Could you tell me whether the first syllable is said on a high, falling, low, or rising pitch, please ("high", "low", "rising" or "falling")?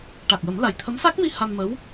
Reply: low